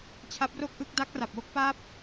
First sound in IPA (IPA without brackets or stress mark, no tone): t͡ɕʰ